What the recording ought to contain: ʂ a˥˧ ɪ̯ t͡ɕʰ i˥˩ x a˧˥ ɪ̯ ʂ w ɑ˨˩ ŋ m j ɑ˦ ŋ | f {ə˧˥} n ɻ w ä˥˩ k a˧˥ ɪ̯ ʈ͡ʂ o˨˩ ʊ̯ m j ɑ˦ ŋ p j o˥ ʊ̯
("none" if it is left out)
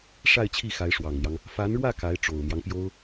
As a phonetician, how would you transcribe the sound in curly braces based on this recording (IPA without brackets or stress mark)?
a˧˥